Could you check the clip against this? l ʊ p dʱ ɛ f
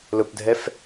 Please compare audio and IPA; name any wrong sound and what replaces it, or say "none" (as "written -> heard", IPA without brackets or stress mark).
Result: none